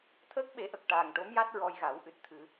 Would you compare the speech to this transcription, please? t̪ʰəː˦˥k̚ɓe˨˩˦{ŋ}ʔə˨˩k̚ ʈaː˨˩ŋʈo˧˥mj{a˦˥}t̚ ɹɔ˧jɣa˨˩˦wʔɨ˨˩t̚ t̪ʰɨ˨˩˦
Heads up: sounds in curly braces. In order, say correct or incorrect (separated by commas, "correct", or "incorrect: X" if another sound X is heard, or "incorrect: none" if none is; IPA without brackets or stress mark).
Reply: incorrect: none, correct